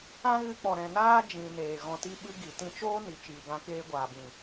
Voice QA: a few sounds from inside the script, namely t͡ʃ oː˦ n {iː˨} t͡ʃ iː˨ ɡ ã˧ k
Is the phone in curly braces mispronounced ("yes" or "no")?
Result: yes